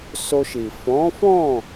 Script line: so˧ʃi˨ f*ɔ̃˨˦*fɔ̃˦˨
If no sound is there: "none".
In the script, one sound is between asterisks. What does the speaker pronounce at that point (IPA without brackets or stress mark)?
ɔ̃˨˦